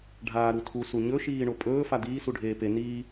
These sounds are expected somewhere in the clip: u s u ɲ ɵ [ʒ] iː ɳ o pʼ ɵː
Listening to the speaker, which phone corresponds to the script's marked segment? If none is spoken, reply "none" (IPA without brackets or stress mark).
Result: ʃ